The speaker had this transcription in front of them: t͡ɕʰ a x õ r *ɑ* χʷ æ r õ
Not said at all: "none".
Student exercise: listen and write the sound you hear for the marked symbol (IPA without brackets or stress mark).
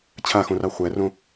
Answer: ɑ